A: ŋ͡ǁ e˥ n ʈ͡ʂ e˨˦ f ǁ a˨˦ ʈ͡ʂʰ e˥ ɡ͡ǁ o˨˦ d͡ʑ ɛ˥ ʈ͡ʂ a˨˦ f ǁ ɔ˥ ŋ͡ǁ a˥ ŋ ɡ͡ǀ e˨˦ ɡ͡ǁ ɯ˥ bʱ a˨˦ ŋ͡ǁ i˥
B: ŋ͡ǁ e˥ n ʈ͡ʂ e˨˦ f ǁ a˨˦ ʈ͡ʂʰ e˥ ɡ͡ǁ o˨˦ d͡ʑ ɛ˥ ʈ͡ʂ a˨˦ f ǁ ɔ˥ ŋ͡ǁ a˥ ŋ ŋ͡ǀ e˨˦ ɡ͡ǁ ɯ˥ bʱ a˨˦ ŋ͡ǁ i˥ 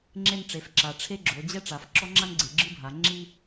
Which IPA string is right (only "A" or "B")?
A